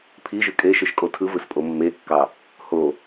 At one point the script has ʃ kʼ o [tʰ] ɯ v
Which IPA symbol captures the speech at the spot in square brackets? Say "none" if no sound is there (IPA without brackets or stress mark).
tʰ